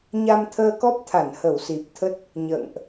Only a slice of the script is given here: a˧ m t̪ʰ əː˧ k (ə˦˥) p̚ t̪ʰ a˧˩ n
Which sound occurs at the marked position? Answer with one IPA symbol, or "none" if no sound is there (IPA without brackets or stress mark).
ɔ˦˥